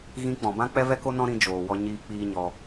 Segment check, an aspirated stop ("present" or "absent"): absent